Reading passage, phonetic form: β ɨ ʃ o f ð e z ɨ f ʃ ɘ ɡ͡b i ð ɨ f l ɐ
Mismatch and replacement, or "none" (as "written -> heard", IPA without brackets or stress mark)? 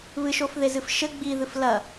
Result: none